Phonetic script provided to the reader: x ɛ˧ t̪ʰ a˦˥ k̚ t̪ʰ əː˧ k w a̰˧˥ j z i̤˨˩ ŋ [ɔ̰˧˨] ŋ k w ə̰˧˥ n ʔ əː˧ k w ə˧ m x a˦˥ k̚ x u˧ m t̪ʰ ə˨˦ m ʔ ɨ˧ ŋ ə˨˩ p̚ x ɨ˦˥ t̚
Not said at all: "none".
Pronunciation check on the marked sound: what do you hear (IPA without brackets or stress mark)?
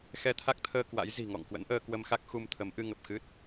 ɔ̰˧˨